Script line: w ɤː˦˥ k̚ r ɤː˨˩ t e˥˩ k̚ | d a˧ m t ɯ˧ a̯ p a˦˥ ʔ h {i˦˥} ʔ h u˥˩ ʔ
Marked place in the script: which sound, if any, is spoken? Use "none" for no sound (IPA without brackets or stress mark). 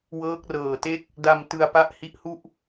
i˦˥